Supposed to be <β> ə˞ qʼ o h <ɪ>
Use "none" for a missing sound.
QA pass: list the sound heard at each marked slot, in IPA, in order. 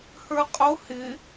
h, ɪ

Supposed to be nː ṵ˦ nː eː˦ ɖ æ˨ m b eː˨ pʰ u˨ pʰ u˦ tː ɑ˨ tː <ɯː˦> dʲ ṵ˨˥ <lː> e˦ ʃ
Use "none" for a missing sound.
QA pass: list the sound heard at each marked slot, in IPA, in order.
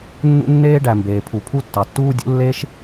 uː˦, lː

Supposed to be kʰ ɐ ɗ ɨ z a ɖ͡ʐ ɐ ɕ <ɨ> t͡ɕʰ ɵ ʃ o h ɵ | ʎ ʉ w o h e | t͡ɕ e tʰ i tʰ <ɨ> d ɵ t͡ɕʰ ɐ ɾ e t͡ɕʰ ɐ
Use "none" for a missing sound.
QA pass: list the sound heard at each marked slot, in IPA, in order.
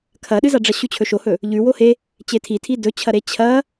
ʉ, i

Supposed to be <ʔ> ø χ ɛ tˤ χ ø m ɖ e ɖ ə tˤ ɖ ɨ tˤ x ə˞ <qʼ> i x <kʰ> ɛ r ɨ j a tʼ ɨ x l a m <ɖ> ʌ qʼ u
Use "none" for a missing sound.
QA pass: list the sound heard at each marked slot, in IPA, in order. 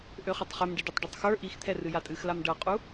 ʔ, ʔ, t̪ʰ, ɖ

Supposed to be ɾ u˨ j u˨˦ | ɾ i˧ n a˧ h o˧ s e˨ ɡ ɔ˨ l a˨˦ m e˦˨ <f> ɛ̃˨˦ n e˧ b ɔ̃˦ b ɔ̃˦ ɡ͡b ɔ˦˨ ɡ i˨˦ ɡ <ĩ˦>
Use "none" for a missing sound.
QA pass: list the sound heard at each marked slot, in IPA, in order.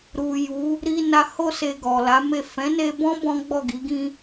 f, ĩ˦

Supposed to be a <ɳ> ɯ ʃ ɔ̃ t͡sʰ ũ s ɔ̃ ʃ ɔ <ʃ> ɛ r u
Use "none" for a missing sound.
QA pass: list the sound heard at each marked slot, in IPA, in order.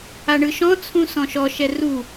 ɳ, ʃ

